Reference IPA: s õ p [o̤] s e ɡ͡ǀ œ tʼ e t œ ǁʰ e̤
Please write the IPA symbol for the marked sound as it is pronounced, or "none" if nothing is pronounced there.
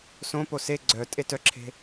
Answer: o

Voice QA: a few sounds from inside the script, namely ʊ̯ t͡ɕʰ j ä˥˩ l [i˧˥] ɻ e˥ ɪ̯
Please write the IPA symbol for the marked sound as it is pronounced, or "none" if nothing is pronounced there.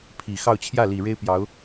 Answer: i˨˩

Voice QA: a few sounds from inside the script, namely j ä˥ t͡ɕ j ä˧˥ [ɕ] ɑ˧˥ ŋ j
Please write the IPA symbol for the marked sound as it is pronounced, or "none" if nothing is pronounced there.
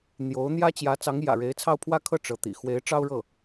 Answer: t͡s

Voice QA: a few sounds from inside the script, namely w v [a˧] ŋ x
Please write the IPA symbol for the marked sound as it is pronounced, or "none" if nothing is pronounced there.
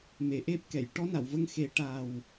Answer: ə˧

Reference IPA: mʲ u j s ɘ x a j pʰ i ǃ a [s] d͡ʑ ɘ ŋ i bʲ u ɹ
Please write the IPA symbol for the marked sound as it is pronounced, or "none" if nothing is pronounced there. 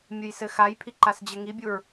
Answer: s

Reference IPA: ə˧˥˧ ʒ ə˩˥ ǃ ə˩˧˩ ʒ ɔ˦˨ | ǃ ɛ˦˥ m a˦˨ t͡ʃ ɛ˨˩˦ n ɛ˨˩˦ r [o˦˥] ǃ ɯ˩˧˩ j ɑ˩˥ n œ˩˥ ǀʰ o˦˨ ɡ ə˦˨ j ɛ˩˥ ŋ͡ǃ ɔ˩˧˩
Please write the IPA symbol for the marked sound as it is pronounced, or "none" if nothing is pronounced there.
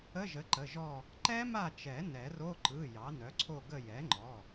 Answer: o˧˥˧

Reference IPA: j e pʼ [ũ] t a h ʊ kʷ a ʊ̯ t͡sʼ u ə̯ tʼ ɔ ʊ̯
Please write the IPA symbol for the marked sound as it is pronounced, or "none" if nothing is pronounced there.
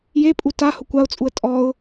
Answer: u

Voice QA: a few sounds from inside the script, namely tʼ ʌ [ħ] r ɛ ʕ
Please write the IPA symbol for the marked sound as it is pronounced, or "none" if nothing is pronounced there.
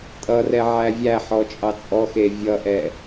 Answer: none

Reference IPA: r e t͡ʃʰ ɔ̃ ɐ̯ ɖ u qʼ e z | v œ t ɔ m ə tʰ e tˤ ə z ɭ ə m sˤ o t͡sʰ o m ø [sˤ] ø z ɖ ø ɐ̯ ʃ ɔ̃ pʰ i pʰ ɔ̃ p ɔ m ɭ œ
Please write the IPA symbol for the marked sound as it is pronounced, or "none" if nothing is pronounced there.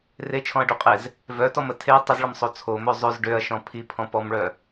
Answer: zˤ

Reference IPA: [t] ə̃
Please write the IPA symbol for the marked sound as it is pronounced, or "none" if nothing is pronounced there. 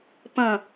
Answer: p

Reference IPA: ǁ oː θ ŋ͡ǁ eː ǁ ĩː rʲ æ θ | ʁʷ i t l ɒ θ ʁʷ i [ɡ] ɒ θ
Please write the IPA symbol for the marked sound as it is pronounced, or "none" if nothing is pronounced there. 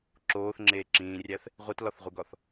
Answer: ɡ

